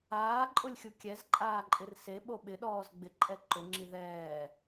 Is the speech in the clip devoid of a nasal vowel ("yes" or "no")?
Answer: yes